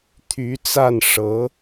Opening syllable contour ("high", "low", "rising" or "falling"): rising